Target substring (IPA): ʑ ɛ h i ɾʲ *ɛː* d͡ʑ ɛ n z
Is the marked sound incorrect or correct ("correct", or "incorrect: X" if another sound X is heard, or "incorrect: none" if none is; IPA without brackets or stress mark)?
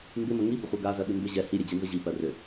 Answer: incorrect: ɛ